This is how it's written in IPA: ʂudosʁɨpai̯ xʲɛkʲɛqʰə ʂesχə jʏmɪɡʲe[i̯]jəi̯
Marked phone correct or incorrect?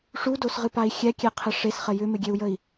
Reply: incorrect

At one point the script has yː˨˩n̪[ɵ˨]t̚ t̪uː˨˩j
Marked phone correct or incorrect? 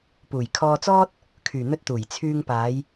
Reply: incorrect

